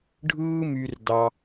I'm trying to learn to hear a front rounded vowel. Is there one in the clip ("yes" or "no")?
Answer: yes